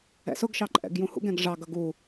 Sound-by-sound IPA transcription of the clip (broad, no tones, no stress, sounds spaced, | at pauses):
ɛ̰ s ʊ ɡ ʃ ɑ ǃʼ ɛ̰ ɡ j ũ h ṵ ɡ ɛ̃ ɡ ʐ ɑ ɡ ʌ ɡ u